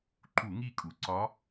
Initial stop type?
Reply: click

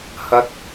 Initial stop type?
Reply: plain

